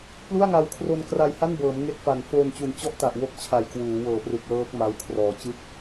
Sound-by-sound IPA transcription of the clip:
p l u˥˩ a̯ ŋ a˧ w kʰ r o˧ n k r a˧ j h a˥˩ n b ɤː˩˦ m ŋ e˦˥ k̚ f a˨˩ n f oː˧ n t͡ɕ u˨˩ n t͡ɕ ɔ˥˩ ʔ t a˨˩ ʔ w o˦˥ k̚ t͡ɕʰ a˨˩ j k w uː˩˦ w ɤː˩˦ p r ɯ˨˩ k̚ l ɤː˦˥ k̚ m a˦˥ w kʰ r ɔː˨˩ t͡ɕ ɯ˥˩ k̚

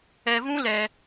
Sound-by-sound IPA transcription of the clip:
ɛ˧ v ũ˦ l ɛ˦

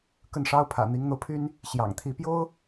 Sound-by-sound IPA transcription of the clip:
k ə˥˩ n ʂ ɑ˥ ʊ̯ pʰ ä̰˨˩ n̪ i˧˥ ŋ n̪ o˧ ʊ̯ pʰ y˥ n | ɕ j ɑ̰˨˩ ŋ t̪ʰ i˧˥ p j o˥ ʊ̯

